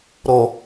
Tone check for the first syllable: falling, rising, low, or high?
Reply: low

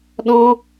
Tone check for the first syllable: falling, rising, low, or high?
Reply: high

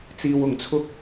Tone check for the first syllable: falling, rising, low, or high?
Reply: low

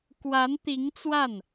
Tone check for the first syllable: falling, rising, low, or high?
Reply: rising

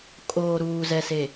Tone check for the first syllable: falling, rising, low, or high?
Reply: low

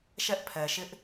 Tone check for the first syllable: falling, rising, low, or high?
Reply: high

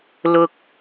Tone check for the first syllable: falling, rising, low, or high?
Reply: high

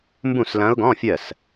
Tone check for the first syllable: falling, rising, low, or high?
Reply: falling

